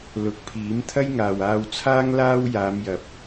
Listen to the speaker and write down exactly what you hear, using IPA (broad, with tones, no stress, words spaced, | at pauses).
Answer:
lʊ˨˥k̚pʰiː˨˥m t̪ʰɐ˥jŋaː˨waː˧w t͡sʰaː˥ŋ laː˧w jaː˨˧mjɐ˨p̚